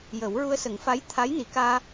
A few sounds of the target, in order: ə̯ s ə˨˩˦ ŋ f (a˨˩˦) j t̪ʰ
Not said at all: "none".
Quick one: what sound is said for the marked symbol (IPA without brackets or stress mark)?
a˧˥